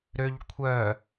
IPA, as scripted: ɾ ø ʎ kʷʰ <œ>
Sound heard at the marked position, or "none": œ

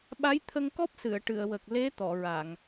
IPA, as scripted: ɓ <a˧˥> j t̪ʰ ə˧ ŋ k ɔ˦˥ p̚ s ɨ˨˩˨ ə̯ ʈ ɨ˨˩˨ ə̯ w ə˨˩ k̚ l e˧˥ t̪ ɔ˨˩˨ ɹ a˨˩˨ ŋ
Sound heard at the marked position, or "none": a˧˥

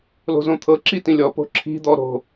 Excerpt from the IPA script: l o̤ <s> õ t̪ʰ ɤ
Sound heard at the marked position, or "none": z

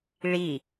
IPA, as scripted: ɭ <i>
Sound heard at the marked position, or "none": i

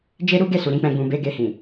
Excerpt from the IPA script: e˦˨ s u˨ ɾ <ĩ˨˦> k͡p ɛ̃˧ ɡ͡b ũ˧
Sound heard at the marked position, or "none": ĩ˨˦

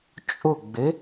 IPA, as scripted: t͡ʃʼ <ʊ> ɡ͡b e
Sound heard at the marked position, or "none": ʊ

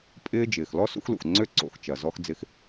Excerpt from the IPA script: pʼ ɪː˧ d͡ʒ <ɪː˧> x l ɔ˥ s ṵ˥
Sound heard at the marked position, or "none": ɪː˩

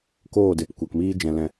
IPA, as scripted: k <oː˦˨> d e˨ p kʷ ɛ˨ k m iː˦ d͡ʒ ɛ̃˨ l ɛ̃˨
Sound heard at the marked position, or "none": oː˦˨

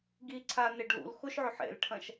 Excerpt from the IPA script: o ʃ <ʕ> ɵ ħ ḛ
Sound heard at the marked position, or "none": ʕ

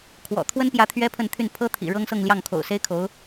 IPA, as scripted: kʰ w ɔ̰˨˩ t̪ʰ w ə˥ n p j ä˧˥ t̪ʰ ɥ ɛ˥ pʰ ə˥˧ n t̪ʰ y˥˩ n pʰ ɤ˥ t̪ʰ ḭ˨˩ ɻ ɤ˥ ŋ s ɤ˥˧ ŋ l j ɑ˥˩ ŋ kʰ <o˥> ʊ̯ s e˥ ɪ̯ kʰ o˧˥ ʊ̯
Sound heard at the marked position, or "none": o̰˨˩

